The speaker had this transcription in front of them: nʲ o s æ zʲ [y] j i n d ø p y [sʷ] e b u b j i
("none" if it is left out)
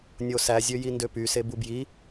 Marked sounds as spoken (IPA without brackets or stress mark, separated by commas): ø, s